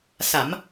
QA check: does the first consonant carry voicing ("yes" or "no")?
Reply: no